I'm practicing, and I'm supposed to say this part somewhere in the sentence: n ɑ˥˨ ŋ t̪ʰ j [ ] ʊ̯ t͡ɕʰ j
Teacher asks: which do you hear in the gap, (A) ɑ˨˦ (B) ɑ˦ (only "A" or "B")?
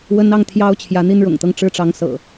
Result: B